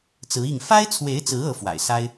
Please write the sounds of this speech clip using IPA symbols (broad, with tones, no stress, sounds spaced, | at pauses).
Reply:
t͡s ɹ̩˧˥ i˥˩ ŋ f a˥ ɪ̯ t͡sʰ w e˧˥ ɪ̯ t͡s ɹ̩˧˥ ɤ˧˥ f w a̰˨˩ ɪ̯ s a˥ ɪ̯